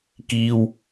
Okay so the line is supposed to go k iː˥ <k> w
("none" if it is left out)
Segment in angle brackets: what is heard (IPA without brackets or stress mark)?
none